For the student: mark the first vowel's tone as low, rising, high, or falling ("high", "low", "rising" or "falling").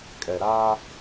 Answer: low